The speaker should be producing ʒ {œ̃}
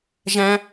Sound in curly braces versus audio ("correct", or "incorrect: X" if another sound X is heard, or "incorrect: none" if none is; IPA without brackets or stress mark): incorrect: æ̃